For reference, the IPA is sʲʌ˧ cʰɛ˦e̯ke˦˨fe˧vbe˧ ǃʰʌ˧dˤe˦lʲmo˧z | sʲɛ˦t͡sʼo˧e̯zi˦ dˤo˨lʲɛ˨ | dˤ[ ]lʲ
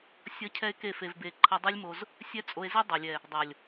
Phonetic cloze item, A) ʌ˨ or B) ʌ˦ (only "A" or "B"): A